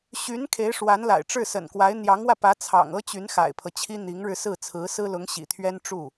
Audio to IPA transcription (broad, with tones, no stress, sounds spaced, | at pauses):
ɕ y˧˥ n kʰ e˧˥ ɪ̯ ʂ w a˧˥ n l a̰˨˩ ɪ̯ ʈ͡ʂ ɻ̩˥˩ s ə̰˨˩ n k w a˧˥ ɪ̯ n̪ j ɑ˧˥ ŋ w ä˧ p ä˧˥ t͡sʰ ɑ̰˨˩ ŋ ɤ˥ t͡ɕ y˧˥ n x a̰˨˩ ɪ̯ pʰ ɤ˦ t͡ɕʰ i˥ n̪ i˧˥ ŋ ɻ ɻ̩˧ s ɹ̩˥˩ t͡sʰ ɹ̩˧˥ s ɹ̩˥ l ʊ˧˥ ŋ ɕ ḭ˨˩ t̪ʰ ɥ ɛ˥ n ʈ͡ʂ u˥˩